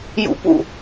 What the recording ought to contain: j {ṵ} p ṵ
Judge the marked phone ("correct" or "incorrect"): correct